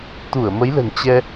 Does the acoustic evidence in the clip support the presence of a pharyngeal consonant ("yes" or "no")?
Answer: no